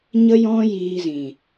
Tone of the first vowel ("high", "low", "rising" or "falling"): high